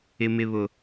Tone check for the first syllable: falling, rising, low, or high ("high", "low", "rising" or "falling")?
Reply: high